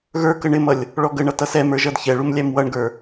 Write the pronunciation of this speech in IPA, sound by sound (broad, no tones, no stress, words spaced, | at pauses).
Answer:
ɣə˞kə ɳɪmʌlʲ | ɭɔɡəɳʌ tʌsɛmə˞ ʒʌdçɛɭum lʲæmwʌɳɡə˞